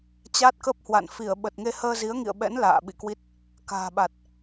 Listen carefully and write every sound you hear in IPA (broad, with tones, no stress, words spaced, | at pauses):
t͡ɕaː˦˥t̚kə˦˥p̚hwa̰˧˨n fi˧˩ə̯ ɓə˨˩t̚ŋe˧ həː˧zi˨˦ə̯ŋḭ˧˨ə̯ɓɛ̰˧˥n la̰ː˧˨ ɓḭ˧˨kwi˦˥t̚ | ka̤ː˨˩ɓa˨˩t̚